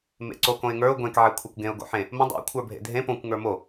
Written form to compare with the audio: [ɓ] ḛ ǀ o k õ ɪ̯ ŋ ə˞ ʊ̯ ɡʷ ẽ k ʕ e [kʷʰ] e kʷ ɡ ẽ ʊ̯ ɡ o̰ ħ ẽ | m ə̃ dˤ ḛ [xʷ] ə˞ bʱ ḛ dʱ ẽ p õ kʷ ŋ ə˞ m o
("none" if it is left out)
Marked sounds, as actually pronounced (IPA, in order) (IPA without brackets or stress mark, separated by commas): m, kʷʰ, kʷʰ